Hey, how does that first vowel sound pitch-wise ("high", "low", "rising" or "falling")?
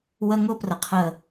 high